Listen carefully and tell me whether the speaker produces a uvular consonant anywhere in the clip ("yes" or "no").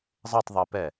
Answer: no